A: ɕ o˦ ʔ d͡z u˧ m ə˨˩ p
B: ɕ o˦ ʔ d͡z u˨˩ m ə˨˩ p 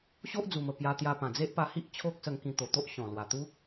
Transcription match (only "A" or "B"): B